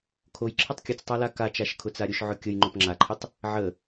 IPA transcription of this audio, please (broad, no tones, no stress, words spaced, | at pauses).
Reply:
kʰoj ǁʰətˤkʲət͡stˤa lakat͡ʃaʃ kʰʊt͡saɾʲʊʃʕʊ kʲəj ŋ͡ǃopŋ͡ǁaǃʰətˤ | ʕə